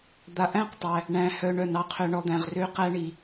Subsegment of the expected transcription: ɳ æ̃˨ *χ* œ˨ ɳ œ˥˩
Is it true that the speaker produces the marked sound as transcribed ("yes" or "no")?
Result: no